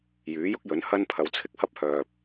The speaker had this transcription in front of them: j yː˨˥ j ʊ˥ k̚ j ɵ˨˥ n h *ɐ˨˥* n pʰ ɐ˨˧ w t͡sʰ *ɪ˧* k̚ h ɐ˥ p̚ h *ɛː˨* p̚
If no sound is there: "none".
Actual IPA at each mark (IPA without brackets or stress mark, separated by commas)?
ɐ˧, ɪ˥, œː˨